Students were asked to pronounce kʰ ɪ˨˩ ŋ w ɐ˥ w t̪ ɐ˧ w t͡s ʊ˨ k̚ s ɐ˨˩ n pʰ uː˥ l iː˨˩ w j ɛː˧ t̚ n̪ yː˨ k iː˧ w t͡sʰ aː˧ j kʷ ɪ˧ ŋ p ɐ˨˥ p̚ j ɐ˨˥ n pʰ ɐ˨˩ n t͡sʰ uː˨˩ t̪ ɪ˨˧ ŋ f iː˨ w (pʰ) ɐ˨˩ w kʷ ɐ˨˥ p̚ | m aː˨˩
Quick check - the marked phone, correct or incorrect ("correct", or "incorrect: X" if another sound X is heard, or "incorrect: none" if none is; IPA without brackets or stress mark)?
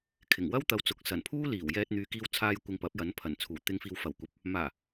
incorrect: f